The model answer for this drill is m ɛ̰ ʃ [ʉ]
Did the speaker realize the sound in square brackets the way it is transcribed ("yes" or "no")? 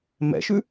yes